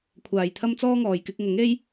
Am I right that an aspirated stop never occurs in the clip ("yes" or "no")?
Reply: no